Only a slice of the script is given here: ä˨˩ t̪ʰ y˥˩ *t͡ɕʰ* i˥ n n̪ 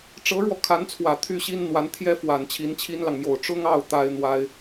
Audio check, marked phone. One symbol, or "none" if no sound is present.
ɕ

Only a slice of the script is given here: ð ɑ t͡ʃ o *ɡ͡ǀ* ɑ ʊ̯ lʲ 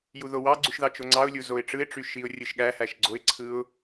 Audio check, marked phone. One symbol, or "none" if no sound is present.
ŋ͡ǀ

